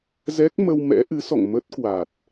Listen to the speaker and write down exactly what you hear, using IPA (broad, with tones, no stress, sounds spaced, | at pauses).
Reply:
z ɛ˦˥ k̚ m ə˧ w m ɛ̰˧˥ ʔ ɨ˨˦ s ɔ̰˧˨ ŋ m ə˦˥ t̚ k w a˨˩ t̚